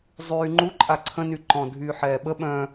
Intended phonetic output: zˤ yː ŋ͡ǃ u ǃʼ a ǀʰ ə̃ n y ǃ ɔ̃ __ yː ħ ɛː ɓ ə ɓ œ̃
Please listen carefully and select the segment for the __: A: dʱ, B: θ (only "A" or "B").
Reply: A